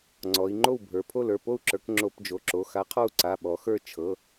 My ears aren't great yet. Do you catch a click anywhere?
yes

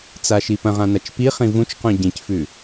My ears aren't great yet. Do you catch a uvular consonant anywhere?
yes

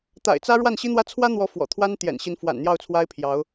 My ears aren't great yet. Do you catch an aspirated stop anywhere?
yes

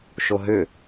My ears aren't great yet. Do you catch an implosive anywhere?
no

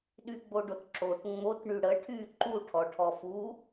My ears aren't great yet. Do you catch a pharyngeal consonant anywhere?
no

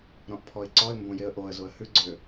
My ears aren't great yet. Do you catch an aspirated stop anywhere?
yes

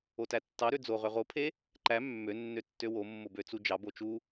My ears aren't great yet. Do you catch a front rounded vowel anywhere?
yes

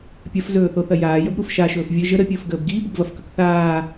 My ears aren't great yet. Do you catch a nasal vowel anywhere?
no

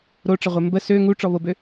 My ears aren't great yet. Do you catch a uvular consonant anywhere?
yes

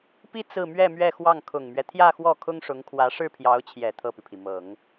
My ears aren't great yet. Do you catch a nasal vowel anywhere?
no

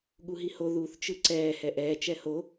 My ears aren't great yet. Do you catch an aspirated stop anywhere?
no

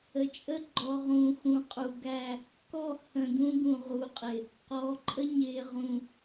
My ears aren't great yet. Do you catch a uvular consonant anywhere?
yes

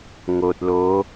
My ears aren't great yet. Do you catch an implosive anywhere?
no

